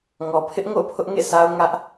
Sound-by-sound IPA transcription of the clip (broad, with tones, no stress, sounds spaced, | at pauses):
ŋ ɔ˨ pʰ ɪ˦ ʔ ŋ o̰˦˨ ʊ̯ pʰ ʊ˦ ʔ ŋ ḛ˦˨ s a˦ ʊ̯ ŋ ä˦ ʔ